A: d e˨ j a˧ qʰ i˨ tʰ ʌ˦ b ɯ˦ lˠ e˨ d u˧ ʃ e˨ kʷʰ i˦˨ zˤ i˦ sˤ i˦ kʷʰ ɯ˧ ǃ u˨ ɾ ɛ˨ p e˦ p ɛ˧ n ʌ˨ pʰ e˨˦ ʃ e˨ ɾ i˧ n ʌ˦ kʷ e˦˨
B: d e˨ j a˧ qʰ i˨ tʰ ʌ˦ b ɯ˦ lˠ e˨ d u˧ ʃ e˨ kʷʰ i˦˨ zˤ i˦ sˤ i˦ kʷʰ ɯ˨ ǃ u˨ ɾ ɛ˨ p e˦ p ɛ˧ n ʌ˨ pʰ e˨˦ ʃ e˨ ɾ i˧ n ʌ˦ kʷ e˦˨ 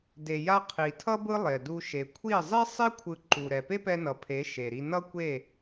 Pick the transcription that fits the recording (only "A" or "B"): A